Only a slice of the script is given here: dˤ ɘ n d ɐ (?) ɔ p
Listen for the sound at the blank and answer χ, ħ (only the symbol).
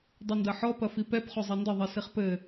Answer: ħ